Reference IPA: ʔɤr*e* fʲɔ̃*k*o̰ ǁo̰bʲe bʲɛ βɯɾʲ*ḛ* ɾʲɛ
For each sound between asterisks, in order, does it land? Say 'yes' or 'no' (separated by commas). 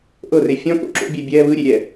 yes, yes, no